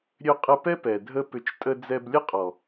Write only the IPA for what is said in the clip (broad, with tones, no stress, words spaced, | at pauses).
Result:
ɾʲø˧qʼə˧pɛ˦ pɛ˨dʱə˦pʏ˧t͡ʃtʼə˦ d͡zɛ˧blʲə˦ qʼɔ˨